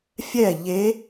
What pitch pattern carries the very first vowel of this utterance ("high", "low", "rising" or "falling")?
falling